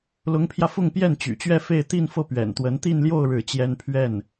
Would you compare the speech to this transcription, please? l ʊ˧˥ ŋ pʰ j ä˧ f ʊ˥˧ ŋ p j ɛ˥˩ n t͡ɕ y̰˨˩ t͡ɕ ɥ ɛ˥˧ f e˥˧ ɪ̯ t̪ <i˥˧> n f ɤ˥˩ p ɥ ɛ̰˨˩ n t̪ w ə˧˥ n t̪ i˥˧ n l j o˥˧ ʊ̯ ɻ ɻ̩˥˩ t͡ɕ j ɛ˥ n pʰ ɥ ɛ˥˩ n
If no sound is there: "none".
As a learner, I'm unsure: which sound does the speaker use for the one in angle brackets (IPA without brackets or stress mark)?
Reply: i˥˧